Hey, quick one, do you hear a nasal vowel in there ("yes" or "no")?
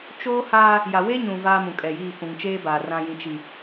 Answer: yes